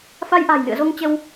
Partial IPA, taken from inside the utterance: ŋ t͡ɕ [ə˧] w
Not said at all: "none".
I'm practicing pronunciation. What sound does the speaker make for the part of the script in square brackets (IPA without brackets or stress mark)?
ə˧